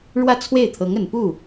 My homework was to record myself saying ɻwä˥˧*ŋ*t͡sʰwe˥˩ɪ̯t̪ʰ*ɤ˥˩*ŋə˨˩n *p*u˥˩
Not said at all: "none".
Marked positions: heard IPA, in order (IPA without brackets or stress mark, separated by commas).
none, ɤ˧˥, p